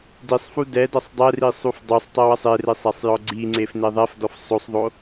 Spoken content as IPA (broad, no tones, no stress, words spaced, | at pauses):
disˤfu dɛdɐsˤ dˤɛri sˤufdˤusˤtˤew ɐsˤeresˤ asˤjɔɡ͡ǀiŋ͡ǀef neðˤɛfdɔf sˤosˤðˤo